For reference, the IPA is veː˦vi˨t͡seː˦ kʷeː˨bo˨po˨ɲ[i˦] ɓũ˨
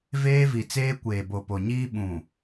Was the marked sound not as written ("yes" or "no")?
yes